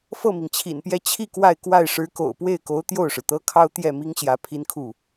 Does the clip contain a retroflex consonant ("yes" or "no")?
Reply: yes